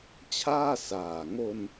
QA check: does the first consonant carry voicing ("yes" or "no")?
no